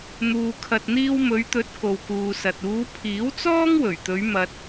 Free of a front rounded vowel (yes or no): yes